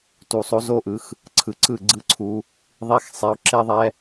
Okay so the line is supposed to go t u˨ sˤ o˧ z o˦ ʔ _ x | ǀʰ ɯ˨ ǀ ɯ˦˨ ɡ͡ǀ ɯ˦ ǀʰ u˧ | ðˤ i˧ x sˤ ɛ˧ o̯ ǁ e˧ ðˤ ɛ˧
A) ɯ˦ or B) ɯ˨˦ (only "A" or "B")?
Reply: B